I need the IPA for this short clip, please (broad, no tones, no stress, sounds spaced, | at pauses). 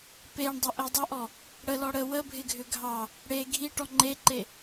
p e ɳ dˤ ə ʔ e dˤ ə ʔ ɔ | ɽ ə l ɔ ɽ ə w ə bʱ ɪ ɡʱ ʏ ɡʱ ɑ | ɽ e ɡʱ i ʈ ɔ ŋ͡ǃ e ǃ e